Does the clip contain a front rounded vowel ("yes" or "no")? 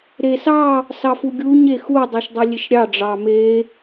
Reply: no